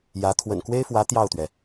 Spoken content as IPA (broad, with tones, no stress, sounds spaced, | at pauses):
j ä˧˥ t̪ʰ w ə̰˨˩ n k w e˥ ɪ̯ f w ä˧˥ t̪ j ɑ˥˩ ʊ̯ t̪ ɥ ɛ˩